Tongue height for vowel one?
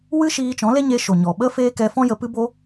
high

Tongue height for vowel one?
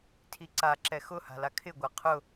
high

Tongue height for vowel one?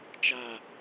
low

